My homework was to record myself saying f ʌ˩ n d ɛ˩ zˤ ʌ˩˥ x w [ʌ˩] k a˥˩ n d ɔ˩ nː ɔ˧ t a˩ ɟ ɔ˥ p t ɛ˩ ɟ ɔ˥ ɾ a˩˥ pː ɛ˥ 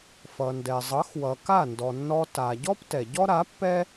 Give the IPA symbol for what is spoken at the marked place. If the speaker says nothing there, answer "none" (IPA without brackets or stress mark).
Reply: ʌ˩